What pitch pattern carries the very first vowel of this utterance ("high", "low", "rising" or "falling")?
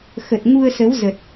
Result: low